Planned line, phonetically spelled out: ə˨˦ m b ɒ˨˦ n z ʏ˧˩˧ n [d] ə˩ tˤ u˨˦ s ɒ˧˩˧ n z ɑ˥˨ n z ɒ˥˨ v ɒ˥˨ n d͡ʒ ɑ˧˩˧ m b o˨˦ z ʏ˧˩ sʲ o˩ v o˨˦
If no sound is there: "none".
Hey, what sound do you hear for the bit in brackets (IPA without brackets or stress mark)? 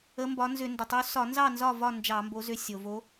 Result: d